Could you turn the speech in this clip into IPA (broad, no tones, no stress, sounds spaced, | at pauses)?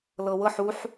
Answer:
l ɤ w ɤ ħ u ħ